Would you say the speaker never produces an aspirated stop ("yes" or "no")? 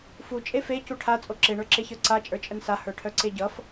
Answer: no